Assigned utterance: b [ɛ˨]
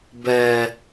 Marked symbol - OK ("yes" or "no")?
yes